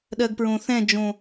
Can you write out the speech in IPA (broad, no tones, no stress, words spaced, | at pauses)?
ɗɜɡpɹõθɛ̃d͡ʒõ